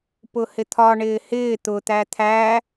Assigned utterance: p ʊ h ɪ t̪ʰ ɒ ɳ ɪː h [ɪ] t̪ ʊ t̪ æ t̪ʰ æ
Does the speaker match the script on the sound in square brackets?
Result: no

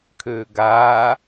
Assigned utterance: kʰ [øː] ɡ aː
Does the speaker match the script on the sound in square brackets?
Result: yes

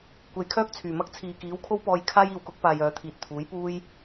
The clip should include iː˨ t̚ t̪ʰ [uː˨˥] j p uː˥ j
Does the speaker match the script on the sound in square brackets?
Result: yes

